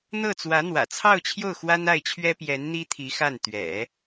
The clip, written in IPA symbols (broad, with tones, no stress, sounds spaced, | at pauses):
n̪ ɤ˥˩ t͡s w ä˧˥ n̪ w ä̰˨˩ t͡sʰ ɑ˥˧ ʊ̯ t͡ɕʰ j o˥˩ ʊ̯ x w a˥ n a˥˩ ɪ̯ t͡ɕʰ ɥ ɛ˥ p j ɛ˧˥ n n̪ i˥ t̪ʰ i˧˥ x a˥˩ n t̪ ɥ ɛ̰˨˩˦